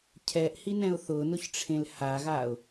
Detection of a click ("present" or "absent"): absent